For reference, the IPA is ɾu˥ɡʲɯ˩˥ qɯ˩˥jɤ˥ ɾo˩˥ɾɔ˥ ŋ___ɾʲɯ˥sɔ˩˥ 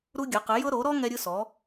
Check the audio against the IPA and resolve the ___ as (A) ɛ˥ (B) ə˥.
A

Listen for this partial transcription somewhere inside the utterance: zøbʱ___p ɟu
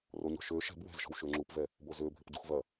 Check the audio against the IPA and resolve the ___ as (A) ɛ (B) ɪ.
B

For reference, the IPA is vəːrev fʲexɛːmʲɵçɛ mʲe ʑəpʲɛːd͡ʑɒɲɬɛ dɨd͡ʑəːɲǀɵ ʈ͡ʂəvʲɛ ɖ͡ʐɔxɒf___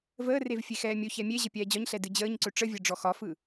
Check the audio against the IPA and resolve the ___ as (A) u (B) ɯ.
B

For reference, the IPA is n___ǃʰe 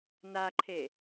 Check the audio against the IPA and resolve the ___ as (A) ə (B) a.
B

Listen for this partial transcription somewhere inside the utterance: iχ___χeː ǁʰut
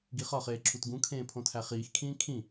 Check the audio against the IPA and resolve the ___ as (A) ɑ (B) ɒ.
B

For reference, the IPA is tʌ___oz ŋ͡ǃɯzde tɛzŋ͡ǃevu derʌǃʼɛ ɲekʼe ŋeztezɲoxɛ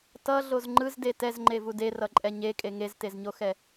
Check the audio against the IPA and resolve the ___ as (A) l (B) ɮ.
B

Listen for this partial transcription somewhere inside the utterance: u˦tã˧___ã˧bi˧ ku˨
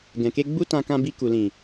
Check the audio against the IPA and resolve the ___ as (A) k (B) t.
A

